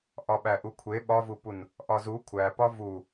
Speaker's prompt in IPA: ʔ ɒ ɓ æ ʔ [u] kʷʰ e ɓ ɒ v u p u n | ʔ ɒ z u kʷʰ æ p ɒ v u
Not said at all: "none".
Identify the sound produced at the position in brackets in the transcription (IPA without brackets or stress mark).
u